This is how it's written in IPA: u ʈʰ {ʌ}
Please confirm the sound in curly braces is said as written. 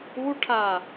no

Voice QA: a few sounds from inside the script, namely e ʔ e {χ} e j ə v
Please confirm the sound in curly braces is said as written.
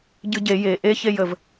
no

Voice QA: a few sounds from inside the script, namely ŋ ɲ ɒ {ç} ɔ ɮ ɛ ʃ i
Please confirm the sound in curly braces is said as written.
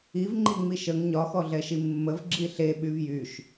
no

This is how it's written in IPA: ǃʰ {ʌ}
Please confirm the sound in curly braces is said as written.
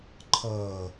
yes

